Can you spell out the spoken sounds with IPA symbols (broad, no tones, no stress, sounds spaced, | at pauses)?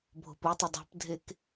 bʱ o̤ p u tˤ ɵ dˤ o̤ p dʱ e k